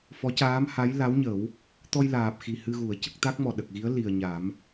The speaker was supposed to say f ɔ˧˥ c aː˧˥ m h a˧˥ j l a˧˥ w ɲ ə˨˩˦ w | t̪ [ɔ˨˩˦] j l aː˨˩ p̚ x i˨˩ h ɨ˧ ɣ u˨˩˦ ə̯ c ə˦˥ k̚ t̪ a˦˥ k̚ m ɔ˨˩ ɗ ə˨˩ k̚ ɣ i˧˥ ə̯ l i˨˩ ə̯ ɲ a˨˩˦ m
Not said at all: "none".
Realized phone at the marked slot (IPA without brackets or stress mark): ɔ˧